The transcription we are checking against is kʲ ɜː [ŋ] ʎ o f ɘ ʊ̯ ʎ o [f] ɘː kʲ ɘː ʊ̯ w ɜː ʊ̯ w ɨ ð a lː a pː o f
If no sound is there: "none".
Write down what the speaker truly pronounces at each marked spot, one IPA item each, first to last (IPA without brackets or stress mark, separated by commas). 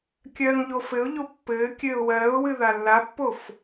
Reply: ŋ, pː